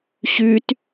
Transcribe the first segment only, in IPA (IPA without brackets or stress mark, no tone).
ɕ